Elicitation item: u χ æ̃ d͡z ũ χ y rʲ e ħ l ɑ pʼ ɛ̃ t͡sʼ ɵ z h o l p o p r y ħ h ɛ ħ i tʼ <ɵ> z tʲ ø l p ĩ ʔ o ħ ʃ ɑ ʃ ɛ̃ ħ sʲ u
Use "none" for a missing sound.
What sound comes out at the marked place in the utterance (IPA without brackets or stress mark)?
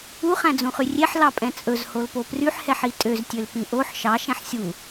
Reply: ø